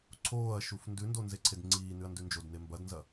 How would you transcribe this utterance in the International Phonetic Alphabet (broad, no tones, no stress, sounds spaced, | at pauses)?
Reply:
ǀʰ oː ɐ̯ ʃ u f n d ʉ n d o n z e ǀʰ e d ŋ͡ǀ iː n ʉ ɐ̯ n d ʉ n d͡ʒ o d n e m b ɐ d n z ɐ